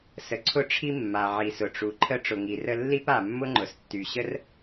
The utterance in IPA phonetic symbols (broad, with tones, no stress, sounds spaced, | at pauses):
s ə˩ ǀʰ ʊ˥ ʈ͡ʂʰ i˥ mː a˩ ʕ i˩ s ʊ˩ ʈ͡ʂ u˩ ǃʰ ə˥ ʈ͡ʂ ʊ˩ ŋ i˩ r ə˥ lː i˥ p a˩ mː ʊ˥ ŋ͡ǃ ʊ˩ s tː y˩ ɕ ə˥ r